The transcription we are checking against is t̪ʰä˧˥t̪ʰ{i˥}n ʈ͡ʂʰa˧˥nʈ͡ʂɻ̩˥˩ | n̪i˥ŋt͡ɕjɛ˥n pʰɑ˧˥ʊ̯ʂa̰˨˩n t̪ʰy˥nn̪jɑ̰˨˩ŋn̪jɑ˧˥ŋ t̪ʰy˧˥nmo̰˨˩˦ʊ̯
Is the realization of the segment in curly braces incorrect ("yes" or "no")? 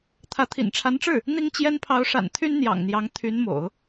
yes